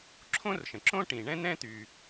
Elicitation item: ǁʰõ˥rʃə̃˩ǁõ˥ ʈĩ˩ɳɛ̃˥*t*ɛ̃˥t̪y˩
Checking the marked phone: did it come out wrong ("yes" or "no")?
yes